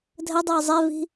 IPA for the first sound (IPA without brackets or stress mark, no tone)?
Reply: dʱ